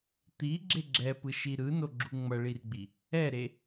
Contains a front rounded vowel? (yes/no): no